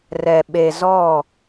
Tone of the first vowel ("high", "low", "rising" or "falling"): low